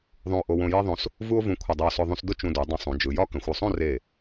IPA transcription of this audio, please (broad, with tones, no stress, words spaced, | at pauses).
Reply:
ðˤũ˧o̯ʔo˧ wõ˧je˥ðˤõ˧s | vu˥o̯vũ˧ kʷʰə˧˩dˤə˧o̯sʊ˧ ðˤũ˧sdʊ˥ t͡ʃũ˧du˩˧ dˤə̃˧ sˤũ˩˧d͡ʒɯ˩˧ jɒ˥kə̃˩˧xʷ ʊ˧˩sˤõ˥˧re˧˩